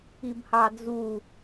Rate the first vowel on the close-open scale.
close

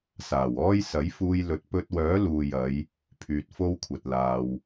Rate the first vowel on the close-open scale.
open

